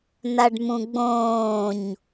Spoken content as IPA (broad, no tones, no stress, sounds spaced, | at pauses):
n a ɖ m ũ ɡ͡b õː ɲ